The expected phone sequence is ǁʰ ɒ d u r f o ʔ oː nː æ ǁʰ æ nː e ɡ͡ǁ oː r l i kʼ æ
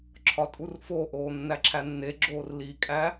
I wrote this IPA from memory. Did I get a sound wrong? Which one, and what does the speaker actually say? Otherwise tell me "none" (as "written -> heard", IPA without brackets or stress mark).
d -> tʼ